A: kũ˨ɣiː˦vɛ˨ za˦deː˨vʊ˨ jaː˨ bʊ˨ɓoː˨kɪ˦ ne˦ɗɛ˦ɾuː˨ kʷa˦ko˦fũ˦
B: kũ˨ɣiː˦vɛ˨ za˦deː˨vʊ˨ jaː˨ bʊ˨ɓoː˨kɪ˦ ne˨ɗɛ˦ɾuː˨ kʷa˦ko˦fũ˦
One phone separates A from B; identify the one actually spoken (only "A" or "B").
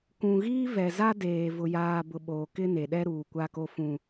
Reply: B